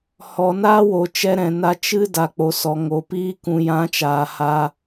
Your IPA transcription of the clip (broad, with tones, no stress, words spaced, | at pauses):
hɔ˨naː˦woː˨t͡ʃɛ˧ ɾɛ̃˨ na˧t͡ʃɨ˦ da˨ k͡po˨sɔ˨ ŋo˨piː˦ kũ˨jã˨˦t͡ʃaː˨ ha˦